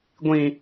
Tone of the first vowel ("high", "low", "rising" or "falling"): high